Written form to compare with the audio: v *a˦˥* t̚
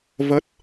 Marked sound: incorrect: ə˦˥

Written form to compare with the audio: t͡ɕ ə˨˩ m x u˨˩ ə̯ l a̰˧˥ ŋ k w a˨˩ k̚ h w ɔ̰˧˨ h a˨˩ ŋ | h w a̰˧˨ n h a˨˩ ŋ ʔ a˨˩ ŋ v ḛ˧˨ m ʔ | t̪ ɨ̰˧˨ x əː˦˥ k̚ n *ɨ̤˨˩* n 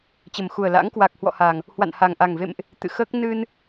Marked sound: incorrect: ɨ˧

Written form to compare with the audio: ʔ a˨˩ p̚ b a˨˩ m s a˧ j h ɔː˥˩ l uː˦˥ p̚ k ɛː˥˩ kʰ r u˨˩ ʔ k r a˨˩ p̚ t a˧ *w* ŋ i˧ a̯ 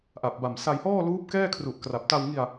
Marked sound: correct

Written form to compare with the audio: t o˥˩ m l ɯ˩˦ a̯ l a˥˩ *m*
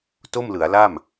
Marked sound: correct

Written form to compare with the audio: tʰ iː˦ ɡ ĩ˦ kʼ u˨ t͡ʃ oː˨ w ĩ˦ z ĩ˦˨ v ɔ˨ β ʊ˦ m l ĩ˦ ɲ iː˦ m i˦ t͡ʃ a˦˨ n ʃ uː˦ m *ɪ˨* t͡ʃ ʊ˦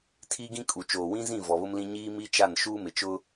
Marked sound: correct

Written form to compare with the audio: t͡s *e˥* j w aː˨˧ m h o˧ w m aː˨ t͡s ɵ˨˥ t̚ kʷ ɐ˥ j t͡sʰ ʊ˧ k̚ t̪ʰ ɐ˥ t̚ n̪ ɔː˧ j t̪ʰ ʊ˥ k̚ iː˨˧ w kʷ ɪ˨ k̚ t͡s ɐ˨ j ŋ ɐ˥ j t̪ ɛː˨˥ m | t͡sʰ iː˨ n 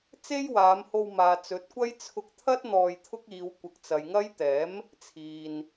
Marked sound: correct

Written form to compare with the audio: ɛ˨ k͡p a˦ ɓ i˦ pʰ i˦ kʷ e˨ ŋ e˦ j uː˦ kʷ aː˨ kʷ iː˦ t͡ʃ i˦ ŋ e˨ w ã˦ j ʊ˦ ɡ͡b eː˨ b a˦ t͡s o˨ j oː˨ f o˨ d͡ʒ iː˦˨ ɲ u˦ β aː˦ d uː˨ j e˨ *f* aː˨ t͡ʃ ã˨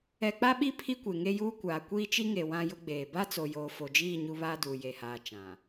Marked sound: incorrect: h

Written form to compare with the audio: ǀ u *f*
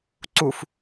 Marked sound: correct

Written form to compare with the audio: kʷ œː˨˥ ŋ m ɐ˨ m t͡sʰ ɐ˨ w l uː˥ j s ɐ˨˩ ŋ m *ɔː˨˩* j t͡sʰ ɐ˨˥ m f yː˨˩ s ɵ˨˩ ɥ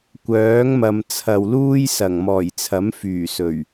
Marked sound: correct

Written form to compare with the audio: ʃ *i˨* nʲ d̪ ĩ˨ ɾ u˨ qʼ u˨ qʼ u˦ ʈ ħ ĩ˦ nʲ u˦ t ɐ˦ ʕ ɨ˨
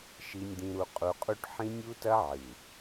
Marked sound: correct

